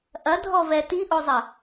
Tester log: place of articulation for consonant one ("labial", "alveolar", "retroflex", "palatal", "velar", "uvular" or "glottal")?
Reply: glottal